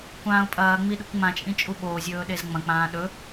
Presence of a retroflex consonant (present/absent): absent